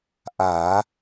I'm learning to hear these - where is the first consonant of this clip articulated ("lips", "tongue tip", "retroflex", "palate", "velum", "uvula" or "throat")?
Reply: throat